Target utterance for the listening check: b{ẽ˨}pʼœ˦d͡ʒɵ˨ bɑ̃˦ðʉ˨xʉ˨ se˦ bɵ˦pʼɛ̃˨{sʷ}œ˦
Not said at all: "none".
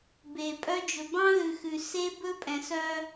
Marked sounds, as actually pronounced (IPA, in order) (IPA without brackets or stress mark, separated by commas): e˨, s